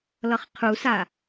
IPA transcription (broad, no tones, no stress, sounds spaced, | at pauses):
l ʌ χ qʰ u s a